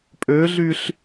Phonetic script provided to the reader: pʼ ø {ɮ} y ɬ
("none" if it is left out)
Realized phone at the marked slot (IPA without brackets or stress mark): ɮ